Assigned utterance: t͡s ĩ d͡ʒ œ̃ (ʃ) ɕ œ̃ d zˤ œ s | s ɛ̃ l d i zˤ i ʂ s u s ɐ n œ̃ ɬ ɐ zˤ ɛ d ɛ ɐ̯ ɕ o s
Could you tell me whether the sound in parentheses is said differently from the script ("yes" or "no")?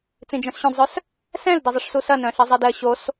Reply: yes